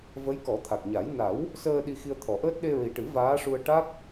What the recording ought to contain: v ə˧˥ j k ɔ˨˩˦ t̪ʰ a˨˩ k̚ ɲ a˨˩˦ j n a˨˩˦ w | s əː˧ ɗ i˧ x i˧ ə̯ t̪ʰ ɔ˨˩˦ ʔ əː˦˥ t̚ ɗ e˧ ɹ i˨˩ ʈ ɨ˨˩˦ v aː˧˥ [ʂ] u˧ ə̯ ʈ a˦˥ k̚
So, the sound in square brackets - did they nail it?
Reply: yes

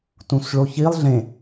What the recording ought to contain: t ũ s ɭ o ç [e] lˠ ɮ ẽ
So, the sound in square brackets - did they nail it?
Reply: no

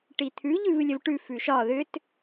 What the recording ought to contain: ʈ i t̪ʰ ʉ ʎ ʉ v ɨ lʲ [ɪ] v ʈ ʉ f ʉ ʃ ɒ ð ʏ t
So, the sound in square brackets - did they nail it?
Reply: no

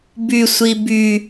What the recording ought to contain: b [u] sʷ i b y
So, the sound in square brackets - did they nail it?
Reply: no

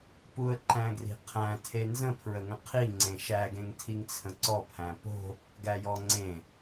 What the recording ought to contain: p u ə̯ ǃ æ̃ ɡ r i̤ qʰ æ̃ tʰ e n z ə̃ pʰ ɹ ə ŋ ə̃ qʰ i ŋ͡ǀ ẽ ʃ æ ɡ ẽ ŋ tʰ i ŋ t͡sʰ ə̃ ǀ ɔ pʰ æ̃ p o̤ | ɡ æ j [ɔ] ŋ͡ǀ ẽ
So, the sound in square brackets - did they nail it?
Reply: yes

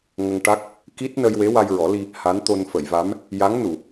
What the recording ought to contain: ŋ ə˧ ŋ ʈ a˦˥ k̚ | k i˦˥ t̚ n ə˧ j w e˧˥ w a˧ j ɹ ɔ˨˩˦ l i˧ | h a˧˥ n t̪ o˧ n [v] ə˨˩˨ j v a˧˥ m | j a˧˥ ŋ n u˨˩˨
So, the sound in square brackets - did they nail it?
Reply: no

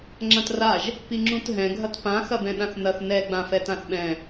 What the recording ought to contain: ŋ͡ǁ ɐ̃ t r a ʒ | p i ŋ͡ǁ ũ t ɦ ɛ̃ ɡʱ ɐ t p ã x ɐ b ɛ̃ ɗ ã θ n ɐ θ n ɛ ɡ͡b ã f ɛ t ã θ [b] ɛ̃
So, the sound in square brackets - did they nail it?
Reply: no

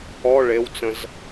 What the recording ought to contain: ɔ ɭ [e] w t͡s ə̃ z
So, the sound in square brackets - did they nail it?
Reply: yes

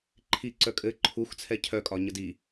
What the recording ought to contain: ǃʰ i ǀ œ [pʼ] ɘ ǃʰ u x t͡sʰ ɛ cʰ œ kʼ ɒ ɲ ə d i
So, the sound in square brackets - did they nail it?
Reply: no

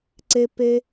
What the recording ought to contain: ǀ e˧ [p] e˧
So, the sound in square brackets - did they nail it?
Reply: yes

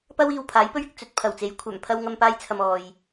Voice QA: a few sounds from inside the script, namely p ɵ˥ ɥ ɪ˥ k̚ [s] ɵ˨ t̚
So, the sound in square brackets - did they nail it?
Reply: no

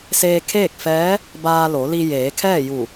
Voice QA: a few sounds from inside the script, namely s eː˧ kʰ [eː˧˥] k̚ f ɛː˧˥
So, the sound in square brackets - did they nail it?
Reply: no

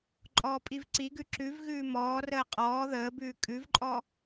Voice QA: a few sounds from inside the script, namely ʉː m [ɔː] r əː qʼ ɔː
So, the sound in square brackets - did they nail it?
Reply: yes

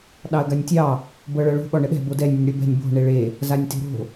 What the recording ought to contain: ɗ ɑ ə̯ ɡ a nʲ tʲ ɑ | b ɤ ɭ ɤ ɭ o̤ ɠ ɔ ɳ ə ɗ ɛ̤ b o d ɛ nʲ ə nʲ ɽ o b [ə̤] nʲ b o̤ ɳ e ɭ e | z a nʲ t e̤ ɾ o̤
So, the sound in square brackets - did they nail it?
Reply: no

